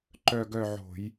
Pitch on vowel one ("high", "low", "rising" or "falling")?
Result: falling